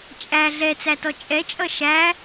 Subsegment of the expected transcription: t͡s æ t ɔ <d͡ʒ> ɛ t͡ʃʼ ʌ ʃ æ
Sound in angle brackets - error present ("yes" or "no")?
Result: yes